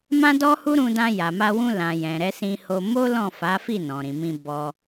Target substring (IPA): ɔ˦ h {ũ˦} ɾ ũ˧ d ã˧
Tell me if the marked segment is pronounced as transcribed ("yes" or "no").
no